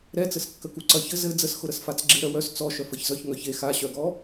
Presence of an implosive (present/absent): absent